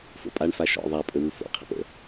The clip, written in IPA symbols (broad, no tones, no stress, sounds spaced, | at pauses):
f o̰ pʼ a ɳ f a ʃ ɔ̰ ðˤ a pʼ ɵ w u f o̰ qʰ ə̰ p ə̰